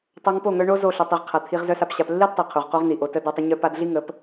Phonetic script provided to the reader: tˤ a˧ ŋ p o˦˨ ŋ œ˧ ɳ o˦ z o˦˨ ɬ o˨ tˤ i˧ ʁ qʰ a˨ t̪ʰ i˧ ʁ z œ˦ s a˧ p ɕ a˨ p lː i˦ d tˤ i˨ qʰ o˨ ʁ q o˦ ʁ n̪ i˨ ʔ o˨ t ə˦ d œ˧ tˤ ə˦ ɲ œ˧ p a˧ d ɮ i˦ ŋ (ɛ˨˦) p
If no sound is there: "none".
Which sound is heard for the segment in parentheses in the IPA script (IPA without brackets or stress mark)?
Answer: ə˨˦